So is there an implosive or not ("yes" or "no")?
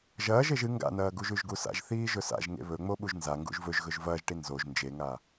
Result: yes